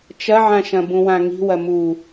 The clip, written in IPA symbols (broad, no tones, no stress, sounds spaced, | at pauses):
t͡ʃ ɐ ʕ ã ʃ ɐ̃ b ũ w ã ŋ i̤ w ɐ m u